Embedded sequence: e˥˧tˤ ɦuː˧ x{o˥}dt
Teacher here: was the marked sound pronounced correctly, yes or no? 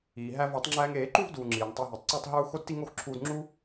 yes